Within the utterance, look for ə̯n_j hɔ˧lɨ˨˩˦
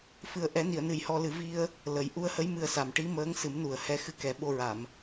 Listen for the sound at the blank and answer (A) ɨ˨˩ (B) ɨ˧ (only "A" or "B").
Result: A